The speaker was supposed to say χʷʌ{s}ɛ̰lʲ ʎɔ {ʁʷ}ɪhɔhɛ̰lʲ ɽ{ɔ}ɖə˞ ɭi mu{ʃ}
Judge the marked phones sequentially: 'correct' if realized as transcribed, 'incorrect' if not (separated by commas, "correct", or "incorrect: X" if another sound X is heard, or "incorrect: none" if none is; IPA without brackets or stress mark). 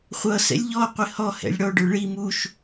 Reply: correct, incorrect: qʷ, correct, correct